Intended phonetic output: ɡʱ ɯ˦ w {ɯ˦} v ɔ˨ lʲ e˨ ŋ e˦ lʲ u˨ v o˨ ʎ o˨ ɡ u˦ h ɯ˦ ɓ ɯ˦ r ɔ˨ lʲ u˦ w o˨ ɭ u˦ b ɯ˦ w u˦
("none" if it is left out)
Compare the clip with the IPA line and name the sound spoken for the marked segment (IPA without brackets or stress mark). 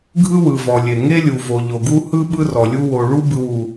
ɯ˨